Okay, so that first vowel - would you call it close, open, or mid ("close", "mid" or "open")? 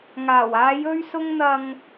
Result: open